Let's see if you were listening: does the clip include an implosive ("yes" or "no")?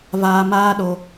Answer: yes